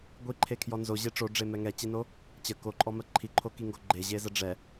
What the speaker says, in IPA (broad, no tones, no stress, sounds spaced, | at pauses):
ɡʷ i ǃʰ e kʰ j ɔ n z o ʑ e ʈ͡ʂ o ɖ͡ʐ e m ɛ ŋ ɛ t͡ɕ i n o | t͡ɕ ə k o ǃʼ ɔ m ɜ ǃʰ i ǃʰ o k i ŋ ɡ o ɡ͡ǃ e ʑ e z ə ɖ͡ʐ ɛ